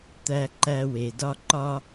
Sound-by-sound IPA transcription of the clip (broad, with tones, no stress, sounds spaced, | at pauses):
t̪ æ˦ ǃ æ˦ w e˩ d ɒ˥ ǃ ɒ˥